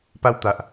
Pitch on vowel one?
high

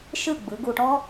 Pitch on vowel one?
falling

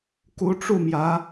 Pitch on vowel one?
rising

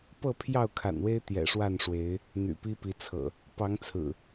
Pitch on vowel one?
falling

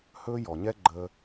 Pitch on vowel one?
high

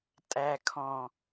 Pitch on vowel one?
low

